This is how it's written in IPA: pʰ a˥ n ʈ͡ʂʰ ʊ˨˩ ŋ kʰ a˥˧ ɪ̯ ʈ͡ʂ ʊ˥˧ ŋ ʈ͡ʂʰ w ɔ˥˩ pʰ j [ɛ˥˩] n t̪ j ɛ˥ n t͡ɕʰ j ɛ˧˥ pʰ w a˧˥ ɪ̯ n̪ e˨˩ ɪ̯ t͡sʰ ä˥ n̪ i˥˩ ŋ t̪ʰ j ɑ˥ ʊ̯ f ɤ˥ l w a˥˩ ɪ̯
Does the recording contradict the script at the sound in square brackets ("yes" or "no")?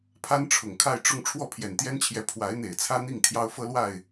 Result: yes